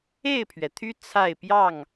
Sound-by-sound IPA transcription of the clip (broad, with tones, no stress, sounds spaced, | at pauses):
e˥˨ ɪ̯ pʰ ɥ ɛ˩ t̪ʰ y˦ t͡sʰ a˥˨ ɪ̯ p j ɑ˥˨ ŋ